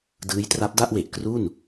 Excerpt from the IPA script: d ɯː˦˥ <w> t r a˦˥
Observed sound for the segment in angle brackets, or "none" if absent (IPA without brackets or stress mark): j